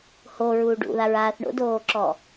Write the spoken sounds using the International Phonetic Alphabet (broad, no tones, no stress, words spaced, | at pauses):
hoɹuːɖ ṵðaɹaːθ ɳo̰doːǁɔ